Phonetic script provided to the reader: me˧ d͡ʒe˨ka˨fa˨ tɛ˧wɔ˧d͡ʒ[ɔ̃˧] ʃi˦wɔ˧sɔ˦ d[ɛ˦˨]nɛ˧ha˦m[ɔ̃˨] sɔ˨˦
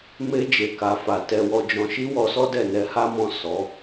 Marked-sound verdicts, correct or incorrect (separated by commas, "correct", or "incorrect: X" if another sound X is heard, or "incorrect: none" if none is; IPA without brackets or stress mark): correct, correct, incorrect: ɔ̃˦˨